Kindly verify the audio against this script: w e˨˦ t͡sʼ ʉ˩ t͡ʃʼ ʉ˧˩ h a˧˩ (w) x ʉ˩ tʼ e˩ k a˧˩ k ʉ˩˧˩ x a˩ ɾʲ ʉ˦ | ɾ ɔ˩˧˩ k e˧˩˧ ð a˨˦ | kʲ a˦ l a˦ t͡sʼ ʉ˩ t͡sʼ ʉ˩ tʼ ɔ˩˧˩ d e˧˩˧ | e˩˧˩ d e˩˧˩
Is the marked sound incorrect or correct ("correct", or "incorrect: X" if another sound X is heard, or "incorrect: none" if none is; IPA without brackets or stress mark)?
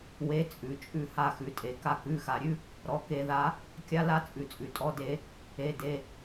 incorrect: none